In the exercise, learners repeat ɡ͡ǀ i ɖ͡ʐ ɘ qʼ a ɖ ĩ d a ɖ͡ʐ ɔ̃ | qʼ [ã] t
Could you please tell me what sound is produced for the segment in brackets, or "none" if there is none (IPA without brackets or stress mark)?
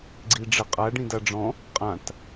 ã